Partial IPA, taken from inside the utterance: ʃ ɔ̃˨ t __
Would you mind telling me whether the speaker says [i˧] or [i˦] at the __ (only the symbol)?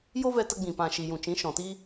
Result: i˦